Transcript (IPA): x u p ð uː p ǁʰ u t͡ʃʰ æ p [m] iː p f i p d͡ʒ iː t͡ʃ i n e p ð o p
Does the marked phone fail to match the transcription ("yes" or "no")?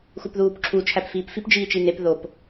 yes